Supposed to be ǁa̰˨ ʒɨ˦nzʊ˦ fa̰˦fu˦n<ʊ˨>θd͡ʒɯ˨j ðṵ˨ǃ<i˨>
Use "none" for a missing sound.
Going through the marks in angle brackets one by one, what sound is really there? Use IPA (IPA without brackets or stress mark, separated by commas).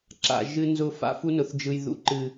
ʊ˨, ɨ˨